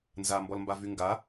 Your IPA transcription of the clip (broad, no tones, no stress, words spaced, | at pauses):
nzambɔlmbavy ŋɡa